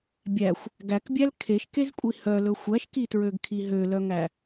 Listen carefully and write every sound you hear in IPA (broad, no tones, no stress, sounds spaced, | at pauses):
bʲ æ xʷ | ɡ æ k bʲ æ l kʰ e ʃ k e z kʷʼ i h œ l ɵ xʷ æ ʃ k i t ɹ ø ɡ kʰ i ɦ ø l œ ŋ æ